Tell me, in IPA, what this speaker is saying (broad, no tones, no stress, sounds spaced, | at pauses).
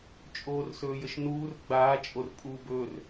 t͡ʃʼ oː r s ɵː j ə ʃ n uː r ɡ͡b aː t͡ʃʼ o r pʼ uː b ɵː r